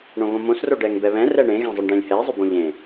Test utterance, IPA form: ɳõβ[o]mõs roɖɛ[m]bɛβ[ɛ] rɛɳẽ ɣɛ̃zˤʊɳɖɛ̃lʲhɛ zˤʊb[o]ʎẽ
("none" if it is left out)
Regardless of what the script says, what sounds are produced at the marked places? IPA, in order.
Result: õ, ŋ, ɛ̃, õ

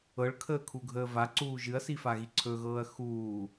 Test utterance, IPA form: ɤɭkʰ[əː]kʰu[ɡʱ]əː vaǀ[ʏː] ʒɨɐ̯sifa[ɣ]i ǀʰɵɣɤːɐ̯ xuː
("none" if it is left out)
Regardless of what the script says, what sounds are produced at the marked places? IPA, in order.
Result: əː, ɡʱ, uː, ɣ

